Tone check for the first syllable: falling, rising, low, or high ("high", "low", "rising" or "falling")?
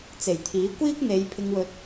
low